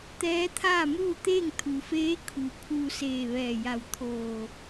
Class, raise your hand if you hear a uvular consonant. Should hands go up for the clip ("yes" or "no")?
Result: no